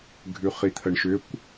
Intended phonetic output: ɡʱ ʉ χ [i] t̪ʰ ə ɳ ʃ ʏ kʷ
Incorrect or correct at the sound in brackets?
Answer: correct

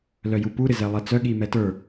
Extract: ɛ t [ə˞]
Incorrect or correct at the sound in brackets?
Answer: correct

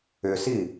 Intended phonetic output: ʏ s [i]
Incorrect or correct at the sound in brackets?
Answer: correct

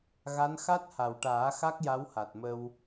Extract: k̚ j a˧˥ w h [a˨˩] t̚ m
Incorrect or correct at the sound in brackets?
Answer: correct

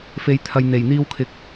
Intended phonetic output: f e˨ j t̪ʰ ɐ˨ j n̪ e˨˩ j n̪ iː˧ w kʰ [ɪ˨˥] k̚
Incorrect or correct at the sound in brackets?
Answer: correct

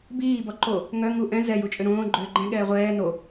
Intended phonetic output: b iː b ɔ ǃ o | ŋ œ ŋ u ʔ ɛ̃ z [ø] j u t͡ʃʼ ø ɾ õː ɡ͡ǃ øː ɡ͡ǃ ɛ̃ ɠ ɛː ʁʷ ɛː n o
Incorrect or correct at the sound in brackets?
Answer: incorrect: ɛ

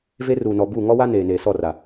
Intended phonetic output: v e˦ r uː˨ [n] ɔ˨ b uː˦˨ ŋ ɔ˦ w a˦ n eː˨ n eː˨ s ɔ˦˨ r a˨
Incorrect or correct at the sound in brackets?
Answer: correct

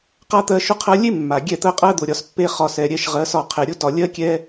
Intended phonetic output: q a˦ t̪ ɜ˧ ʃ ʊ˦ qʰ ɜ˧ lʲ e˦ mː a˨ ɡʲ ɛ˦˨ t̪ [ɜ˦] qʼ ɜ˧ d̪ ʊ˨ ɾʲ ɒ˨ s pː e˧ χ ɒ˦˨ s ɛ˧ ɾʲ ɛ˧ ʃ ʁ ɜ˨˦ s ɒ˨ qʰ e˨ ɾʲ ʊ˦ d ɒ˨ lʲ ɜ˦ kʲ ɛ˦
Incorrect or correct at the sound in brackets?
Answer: correct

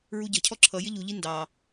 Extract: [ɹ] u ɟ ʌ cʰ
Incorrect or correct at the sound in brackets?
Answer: correct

